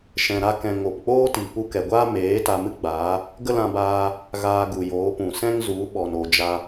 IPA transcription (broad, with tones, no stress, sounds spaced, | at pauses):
ʃ ɛ̃˧ ɾ a˦ k ɛ̃˧ ŋ o˨ p k͡p oː˦ t i˨ p u˧ k ɛ˨ ɡʷ aː˦ m eː˨˦ t a˧ m ɨ˦ ɡ͡b aː˨˦ | ɡ ə˦ l ã˧ b aː˧ | ɣ aː˧ ɡ u˨ j oː˨˦ p ũ˨ s ɛ̃˦ ŋ z u˨˦ ɓ ɔ˨ n o˨ d͡ʒ a˧